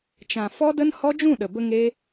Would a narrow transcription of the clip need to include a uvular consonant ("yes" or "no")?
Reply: no